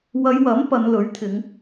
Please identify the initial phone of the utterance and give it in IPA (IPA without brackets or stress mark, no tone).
w